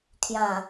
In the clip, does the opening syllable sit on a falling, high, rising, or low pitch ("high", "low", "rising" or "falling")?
low